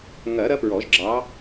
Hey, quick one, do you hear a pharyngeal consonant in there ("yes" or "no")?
no